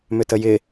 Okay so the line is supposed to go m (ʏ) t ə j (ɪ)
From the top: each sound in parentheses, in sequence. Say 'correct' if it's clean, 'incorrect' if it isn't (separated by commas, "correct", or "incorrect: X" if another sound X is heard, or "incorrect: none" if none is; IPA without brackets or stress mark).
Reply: correct, correct